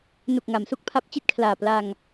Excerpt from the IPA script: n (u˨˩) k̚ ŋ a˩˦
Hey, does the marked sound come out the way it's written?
yes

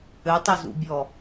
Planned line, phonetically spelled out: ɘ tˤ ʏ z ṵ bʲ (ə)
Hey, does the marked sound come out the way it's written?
no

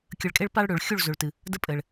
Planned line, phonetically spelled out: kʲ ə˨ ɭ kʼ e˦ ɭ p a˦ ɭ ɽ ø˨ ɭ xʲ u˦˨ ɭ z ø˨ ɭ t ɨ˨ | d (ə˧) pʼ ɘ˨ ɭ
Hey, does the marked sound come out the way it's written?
no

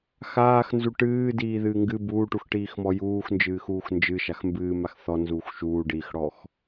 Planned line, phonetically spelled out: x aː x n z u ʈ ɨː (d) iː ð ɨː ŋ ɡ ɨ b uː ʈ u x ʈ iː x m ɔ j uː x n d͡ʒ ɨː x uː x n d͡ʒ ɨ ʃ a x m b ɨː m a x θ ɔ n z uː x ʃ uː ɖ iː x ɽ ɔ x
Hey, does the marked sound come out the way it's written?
yes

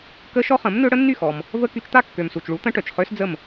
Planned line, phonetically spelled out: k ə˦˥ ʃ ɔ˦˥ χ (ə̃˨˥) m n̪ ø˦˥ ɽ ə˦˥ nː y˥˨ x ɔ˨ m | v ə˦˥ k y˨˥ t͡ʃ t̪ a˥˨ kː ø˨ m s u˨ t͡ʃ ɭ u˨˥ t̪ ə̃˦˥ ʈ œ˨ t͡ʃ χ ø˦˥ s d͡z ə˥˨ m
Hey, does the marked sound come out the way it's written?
yes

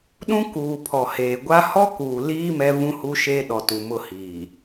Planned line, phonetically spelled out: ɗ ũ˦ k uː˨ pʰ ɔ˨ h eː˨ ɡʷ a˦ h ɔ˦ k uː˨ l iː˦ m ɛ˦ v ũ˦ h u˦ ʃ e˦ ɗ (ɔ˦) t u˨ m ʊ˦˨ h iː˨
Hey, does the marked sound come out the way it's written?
no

